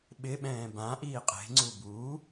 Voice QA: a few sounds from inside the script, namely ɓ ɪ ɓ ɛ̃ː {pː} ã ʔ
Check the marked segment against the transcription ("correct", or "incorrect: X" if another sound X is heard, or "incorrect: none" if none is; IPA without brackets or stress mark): incorrect: b